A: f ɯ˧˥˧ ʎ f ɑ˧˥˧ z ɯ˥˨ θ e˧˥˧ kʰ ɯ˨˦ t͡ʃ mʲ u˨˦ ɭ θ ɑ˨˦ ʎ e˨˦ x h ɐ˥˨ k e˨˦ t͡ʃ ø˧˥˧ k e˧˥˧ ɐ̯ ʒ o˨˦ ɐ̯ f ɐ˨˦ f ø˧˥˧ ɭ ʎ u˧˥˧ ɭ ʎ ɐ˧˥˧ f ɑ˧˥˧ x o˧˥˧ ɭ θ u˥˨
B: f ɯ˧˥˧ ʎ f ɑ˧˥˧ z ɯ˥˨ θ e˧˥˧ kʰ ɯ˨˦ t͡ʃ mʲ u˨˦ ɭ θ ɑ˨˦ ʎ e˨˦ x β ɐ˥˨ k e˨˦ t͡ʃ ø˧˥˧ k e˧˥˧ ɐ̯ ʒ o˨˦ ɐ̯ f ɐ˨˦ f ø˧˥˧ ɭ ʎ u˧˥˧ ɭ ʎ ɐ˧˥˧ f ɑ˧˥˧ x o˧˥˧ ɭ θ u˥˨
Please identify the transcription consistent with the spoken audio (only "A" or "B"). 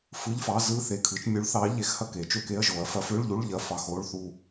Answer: A